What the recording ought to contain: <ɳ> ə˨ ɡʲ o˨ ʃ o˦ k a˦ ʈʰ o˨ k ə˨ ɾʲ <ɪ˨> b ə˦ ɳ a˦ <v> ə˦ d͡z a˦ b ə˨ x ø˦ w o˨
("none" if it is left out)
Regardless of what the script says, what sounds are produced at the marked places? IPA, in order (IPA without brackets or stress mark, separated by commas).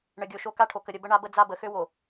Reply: ɳ, ə˨, b